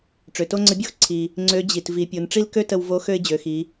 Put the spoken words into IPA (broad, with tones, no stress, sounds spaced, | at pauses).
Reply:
ʈ͡ʂ ø˩ t o˥ ŋ͡ǀ ə˧˥ bʲ o˥ x ǀʰ i˩ | ŋ͡ǀ ø˧˥ d͡ʑ i˩ t v i˩˧ pʲ o˩˧ n ʈ͡ʂ i˥ l k ø˥ t ə˧ w v o˧˥ x ø˥ ɪ̯ d͡ʑ ø˩˧ x i˩˧